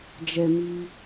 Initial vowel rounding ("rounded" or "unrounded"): unrounded